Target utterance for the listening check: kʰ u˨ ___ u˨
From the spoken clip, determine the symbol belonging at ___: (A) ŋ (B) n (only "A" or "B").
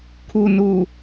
B